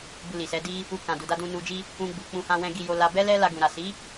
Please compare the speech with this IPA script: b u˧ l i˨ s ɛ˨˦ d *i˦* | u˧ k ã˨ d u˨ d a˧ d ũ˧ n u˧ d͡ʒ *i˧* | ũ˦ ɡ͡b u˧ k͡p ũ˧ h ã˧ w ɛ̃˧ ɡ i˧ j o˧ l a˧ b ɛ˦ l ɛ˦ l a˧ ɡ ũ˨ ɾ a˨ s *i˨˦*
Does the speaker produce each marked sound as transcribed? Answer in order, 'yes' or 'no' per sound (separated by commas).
yes, no, yes